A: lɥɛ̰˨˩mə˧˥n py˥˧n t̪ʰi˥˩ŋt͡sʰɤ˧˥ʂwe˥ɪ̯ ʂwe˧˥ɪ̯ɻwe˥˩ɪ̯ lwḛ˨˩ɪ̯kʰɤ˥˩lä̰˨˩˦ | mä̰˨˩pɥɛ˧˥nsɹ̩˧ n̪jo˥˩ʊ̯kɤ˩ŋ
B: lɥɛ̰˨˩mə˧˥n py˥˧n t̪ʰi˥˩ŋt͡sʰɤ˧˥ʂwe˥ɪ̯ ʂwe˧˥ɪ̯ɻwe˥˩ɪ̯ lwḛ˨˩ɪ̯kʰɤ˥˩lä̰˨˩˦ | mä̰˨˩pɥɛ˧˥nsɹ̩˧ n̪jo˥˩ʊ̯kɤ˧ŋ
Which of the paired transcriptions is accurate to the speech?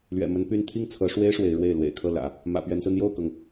A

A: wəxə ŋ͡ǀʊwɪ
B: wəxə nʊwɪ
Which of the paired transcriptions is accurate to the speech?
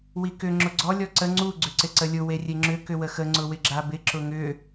A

